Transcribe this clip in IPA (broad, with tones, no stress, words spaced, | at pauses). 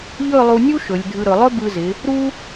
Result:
ʎɵ˥˧lˠu˧nʲu˥ ʃɵ˩˧lʲdʱɯ˧ɾɵ˩˧ lˠɵ˥bɯ˧zɪ˩˧ | ɾu˥